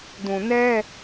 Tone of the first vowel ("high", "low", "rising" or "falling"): low